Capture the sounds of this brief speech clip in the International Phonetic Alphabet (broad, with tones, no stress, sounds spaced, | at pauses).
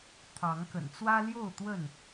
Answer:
t̪ʰ ɑ˨˦ ŋ k ə̰˨˩ n t͡s w ä˦ l j o˥˨ ʊ̯ t̪ w ə˥˨ n